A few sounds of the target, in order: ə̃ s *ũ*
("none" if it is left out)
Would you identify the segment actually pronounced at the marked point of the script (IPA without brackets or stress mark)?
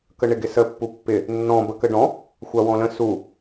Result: u